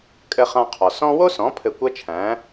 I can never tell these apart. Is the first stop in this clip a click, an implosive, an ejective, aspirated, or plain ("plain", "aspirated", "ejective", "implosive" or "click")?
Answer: ejective